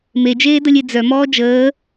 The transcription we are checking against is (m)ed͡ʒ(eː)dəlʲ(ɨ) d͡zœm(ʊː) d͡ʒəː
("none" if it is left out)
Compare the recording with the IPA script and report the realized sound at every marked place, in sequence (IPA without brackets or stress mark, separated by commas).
m, eː, e, ɔː